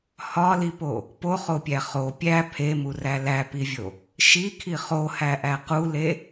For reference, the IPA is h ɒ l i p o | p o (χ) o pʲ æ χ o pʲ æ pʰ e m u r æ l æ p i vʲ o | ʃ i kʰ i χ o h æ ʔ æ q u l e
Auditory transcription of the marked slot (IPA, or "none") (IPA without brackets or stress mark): χ